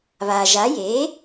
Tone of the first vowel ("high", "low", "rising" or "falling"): low